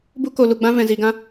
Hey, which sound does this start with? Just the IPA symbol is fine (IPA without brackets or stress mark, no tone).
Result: b